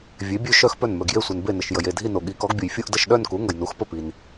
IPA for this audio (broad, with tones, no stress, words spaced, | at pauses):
vʲe˩˥bʲø˥˧ ʃœ˥˧xpœ˥˩nmœ˩ɡ je˥˩sʷe˩n be˥˩nə˩ʃ jə˩je˥˩dʱi˥˧no˩ ɠi˩˥kɔ˩˥ɡbʲu˩jfʲu˥˧ʔ də˥˩ʃɗœ˥˧nku˩˥ŋə˩j nu˩˥xpə˥˩pi˩n